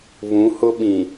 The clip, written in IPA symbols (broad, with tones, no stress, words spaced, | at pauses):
βũ˨˦hʊ˦ɓĩ˨